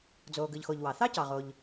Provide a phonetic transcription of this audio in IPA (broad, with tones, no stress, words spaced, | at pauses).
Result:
d͡zoː˩ɡɯ˩ʎxo˩ʎ wɑ˩ θɑ˥cɑ˩ʁ o˩ʎ